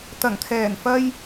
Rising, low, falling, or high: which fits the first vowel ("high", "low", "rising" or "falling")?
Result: low